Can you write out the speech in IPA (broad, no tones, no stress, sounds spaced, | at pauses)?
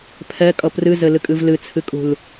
pʰ ɛ kʼ ʌ p r ɨ z ɘ l ɨ kʼ ɨ v l ɨ t͡sʰ ɨ kʼ ṳ l